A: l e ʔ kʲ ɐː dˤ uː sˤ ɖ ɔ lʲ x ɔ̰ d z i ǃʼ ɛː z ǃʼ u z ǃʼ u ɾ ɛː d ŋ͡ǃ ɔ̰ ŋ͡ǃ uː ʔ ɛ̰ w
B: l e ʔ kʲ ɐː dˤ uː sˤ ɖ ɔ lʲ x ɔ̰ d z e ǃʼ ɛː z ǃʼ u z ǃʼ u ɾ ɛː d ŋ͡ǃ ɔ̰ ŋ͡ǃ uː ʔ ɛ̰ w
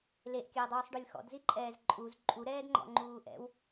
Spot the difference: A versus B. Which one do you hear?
A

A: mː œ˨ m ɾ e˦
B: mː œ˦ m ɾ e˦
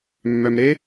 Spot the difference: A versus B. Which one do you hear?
A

